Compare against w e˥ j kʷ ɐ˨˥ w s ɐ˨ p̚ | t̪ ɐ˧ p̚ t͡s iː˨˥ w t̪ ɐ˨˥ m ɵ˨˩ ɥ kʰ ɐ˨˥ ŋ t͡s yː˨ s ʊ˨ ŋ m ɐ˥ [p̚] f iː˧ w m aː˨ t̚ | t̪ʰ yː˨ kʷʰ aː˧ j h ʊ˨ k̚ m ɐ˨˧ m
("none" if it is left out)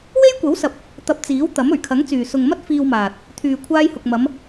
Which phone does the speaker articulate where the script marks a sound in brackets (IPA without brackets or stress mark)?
t̚